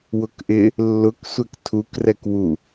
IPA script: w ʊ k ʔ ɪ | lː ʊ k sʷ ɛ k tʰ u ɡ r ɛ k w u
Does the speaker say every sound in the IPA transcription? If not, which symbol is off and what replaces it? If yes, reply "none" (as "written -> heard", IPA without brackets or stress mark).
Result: ɡ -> k